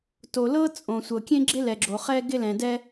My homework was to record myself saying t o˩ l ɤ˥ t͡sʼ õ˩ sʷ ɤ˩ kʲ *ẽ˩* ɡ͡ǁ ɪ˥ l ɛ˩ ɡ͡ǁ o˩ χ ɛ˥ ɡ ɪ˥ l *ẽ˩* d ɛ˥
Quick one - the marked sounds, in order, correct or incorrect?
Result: incorrect, incorrect

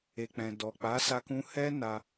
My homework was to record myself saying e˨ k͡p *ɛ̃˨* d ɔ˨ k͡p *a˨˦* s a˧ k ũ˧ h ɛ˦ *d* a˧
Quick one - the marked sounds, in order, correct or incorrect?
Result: correct, correct, incorrect

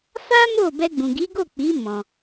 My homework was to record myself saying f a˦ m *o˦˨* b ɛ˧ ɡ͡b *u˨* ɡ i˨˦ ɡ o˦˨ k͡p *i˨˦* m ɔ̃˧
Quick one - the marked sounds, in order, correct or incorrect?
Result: correct, incorrect, correct

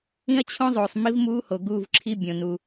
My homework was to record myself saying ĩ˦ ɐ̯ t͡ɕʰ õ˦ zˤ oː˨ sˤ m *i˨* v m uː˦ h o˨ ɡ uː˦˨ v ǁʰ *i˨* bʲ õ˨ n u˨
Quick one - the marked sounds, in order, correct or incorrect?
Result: incorrect, incorrect

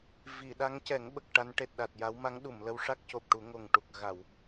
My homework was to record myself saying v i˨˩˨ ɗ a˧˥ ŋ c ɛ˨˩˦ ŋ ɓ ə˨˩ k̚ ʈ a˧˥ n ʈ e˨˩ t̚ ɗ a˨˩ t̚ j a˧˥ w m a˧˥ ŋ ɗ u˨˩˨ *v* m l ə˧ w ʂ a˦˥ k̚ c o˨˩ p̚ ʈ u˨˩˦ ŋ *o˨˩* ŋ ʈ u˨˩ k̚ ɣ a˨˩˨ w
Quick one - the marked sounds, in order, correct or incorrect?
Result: incorrect, correct

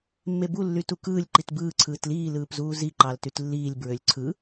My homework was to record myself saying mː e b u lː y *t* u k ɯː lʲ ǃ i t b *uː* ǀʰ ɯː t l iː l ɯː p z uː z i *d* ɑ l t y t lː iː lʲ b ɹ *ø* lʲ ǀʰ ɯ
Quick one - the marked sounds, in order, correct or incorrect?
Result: correct, incorrect, incorrect, correct

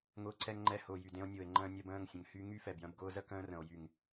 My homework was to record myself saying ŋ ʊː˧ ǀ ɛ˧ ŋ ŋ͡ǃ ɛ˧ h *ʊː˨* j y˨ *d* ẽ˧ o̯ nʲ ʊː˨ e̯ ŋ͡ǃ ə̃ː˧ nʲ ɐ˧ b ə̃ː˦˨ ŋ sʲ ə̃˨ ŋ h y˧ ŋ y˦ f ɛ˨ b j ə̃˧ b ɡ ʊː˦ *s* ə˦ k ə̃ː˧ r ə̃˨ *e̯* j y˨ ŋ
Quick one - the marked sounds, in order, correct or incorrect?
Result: correct, correct, incorrect, incorrect

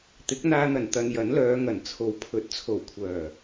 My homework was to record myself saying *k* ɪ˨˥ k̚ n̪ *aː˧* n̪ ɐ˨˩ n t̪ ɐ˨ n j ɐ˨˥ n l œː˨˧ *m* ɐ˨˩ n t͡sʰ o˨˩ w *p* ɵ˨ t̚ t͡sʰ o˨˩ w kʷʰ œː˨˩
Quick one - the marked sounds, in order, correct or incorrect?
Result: incorrect, correct, incorrect, incorrect

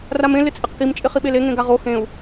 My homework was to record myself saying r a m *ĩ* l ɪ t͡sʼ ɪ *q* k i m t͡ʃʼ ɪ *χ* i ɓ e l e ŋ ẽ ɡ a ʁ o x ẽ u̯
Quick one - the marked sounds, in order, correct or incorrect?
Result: incorrect, correct, correct

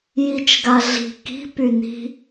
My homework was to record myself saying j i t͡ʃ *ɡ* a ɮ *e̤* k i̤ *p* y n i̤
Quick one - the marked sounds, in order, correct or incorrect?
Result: correct, incorrect, correct

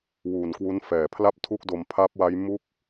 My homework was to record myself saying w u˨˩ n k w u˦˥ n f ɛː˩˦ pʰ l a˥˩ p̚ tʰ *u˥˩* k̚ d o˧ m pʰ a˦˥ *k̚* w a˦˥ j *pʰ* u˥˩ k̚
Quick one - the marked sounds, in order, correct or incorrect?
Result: correct, incorrect, incorrect

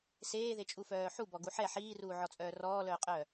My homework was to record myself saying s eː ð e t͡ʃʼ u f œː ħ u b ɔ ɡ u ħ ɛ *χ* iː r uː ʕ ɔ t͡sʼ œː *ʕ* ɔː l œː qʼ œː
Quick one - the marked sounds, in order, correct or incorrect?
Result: incorrect, incorrect

